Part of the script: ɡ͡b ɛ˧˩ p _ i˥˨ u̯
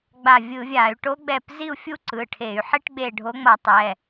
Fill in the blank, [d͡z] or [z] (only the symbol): z